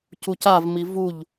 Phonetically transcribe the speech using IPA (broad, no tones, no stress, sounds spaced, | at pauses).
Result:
c u c a v m i v u ʎ